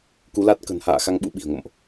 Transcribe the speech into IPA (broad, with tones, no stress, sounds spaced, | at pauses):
k u˨˦ l a˦˥ t̚ k ə̤˨˩ n h a̰ː˧˨ x a˧ ŋ ɓ ṵ˧˥ ɓ i̤˨˩ ə̯ ŋ o̰˧˨ m ʔ